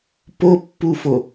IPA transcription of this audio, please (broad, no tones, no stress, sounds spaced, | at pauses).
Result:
p o pː u f o